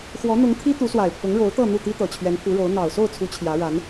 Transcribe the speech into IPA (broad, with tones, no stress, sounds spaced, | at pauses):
x w ɔ˧˥ n̪ ʊ˧˥ ŋ t̪ʰ i˥ t̪ u˧˥ s w a˨˩ ɪ̯ pʰ ʊ˧˥ ŋ ɻ o˧˥ ʊ̯ t̪ ɤ˥˧ n̪ u˥˩ t̪ i˥ t̪ ɤ˨˩ t͡ɕʰ ɥ ɛ˧˥ n pʰ u˧˥ ɻ o˧˥ ʊ̯ n̪ ɑ˨˩ ʊ̯ s o˥˩ ʊ̯ t͡sʰ u˧˥ t͡ɕʰ j ä˧˥ ɻ a˧˥ n